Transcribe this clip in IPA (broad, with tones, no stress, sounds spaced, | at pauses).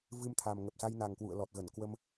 v ɨ˧ m t̪ʰ a˨˩ m ŋ ə˨˩ p̚ s a˧ j n a˨˩ ŋ k w ṵ˧˨ ə̯ l ɔ˨˩ t̚ ɣ ə˧˩ n k w ə˧ m